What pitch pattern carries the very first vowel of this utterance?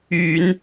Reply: low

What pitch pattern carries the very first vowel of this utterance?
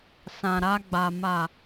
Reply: low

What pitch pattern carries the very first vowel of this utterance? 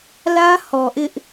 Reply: high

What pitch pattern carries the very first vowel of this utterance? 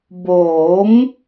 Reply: rising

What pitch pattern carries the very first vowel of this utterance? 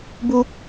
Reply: high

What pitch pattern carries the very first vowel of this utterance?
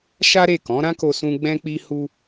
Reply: high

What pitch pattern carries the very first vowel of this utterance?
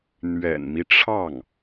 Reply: low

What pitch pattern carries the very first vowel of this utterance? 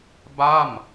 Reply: falling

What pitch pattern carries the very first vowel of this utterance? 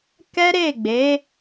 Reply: high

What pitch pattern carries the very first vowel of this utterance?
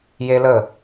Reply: high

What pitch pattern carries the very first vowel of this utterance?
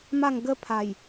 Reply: falling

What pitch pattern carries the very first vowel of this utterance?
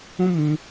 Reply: high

